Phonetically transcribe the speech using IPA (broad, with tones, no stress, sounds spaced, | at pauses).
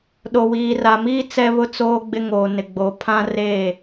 ɗ o˨ w iː˨ r a˨ m iː˦ t͡s ɛ˦ β ʊ˦ t͡s oː˦ ɡ͡b ɪ˦ ŋ oː˨ n ɪ˨ ɡ͡b o˨ pʰ ã˦ r eː˦˨